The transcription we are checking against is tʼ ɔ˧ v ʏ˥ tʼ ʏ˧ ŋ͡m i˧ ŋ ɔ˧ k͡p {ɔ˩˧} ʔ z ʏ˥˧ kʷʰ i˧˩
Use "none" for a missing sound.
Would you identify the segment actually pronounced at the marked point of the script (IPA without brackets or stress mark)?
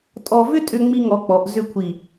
ɔ˩˧